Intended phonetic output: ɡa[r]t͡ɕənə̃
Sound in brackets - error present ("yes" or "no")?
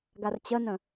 no